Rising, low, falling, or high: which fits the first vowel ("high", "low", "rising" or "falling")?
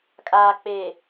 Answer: low